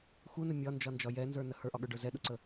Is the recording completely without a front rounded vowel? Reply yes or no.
yes